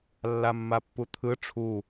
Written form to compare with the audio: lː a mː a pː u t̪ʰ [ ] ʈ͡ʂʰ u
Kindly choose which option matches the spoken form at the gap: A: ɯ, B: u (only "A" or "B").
A